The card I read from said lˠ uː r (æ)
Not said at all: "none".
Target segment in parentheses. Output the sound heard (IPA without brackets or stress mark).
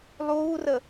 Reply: ə